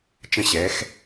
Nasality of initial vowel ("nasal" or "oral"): nasal